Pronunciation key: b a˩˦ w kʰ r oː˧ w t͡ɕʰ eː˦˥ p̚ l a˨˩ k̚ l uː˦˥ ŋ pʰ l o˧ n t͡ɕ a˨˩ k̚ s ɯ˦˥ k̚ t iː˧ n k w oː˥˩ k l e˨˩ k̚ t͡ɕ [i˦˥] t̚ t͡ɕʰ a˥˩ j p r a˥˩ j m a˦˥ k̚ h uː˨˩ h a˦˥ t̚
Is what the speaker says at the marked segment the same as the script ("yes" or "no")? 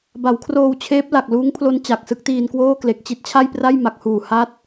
yes